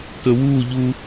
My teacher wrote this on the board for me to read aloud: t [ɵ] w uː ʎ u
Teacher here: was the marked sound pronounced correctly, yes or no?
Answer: yes